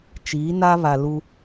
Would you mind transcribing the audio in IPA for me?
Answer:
t͡ʃ iː˨˦ n a˦ β a˨ l u˦

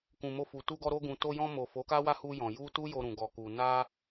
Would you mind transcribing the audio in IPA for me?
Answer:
k ũ˨ m o˧ f u˨ t u˧ ɡ ɔ˧ ɾ o˧ ɡ ũ˨ t o˧ j ɔ̃˧ m o˨ f o˨˦ k a˦ w a˦ h u˧ j ɔ̃˨ j u˧ t u˦ j o˧ ɾ ũ˨ ɡ ɔ˨ k u˨ n a˧

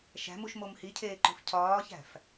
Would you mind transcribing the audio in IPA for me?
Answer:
ʃ æ̤ m u ʃ m o m h i cʰ eː ǃ o̤ f cʰ ɒː ç æ̤ f

